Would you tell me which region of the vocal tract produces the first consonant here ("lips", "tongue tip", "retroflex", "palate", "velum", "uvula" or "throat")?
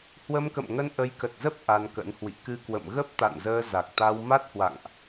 throat